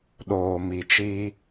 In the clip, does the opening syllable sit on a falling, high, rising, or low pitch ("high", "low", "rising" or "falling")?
low